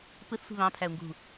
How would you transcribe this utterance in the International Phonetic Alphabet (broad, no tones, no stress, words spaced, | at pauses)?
pɯθsʷi̤ βɑ̃pʰæʊ̯ŋɡṳ